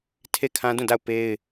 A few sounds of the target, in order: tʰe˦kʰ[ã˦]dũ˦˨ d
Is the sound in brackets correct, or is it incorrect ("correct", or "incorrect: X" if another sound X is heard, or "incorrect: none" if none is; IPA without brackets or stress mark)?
correct